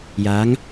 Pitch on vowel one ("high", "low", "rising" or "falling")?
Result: rising